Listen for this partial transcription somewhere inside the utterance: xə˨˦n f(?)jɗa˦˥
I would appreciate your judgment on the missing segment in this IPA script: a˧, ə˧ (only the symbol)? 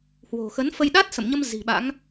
ə˧